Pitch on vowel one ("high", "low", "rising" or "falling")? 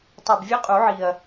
low